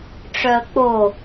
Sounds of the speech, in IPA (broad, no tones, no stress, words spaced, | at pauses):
ʈ͡ʂœə̯k͡po